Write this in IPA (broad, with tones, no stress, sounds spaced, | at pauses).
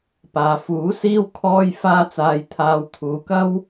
p aː˨ f uː˨˥ s iː˥ w kʰ ɔː˥ j f aː˥ t͡s aː˧ j t̪ʰ aː˧ w t̪ʰ uː˨ k ɐ˥ w